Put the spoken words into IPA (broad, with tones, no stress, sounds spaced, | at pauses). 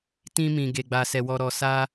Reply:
t ĩ˦ m ĩ˧ ɡ e˧ ɡ͡b a˧ s ɛ˧ w ɔ˧ ɾ ɔ˧ s a˦